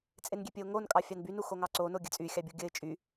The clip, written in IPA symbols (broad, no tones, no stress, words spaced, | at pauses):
t͡sʼenɡʲepʲɘʊ̯ŋon kʼɑfʲɑnbyn uxoŋɑǀo noɡʲɘt͡sʼy xʲɑbʲuɡʲɘɪ̯ t͡ʃʼy